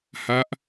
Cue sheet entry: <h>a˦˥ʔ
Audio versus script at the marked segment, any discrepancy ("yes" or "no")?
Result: no